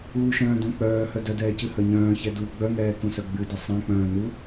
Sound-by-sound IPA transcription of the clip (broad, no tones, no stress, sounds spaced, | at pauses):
uː ʃ œ̃ː d œ̃ k͡p œː h œ d œ d ɛː c ɨ h œ ɲ œ̃ː ç ɛ d uː ɡ͡b œ ŋ ɛː k ũ s œ ɡ͡b ɨ d ɨ sˤ ɛ̃ k͡p œ̃ː n u